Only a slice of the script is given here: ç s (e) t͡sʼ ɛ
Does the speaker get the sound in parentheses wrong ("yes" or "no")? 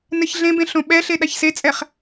no